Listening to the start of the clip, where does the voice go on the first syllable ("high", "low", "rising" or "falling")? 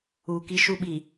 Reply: low